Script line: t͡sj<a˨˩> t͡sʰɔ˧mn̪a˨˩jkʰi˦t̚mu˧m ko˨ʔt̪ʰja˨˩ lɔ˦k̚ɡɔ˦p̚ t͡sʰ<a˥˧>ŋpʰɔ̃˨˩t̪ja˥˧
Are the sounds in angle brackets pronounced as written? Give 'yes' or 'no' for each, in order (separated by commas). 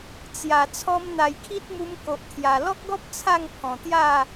yes, yes